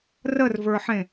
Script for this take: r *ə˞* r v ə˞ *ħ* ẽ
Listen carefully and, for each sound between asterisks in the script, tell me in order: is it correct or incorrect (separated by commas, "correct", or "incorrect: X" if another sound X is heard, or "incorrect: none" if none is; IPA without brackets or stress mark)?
incorrect: ə, correct